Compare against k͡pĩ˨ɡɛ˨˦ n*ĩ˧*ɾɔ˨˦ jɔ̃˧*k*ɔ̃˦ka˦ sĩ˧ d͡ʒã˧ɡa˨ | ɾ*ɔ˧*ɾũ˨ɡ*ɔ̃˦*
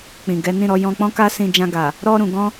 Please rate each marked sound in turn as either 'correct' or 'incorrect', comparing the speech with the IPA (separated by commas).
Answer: incorrect, incorrect, correct, incorrect